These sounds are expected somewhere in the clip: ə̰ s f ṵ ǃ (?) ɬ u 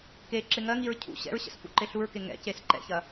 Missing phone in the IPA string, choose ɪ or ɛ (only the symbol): ɪ